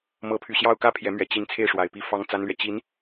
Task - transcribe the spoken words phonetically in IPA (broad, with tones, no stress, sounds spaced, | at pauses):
m ɤ˧˥ pʰ y˨˩ ɕ j ɑ˥˧ ʊ̯ k ä˥˩ pʰ j ɛ˧˥ m ɥ ɛ˨˩ t͡ɕ i˧˥ n t͡sʰ e˥˩ ɪ̯ ʂ w a˨˩ ɪ̯ p i˥˩ f ɑ˥ ŋ t͡s a˥ n l ɥ ɛ˨ t͡ɕ i˧˥ n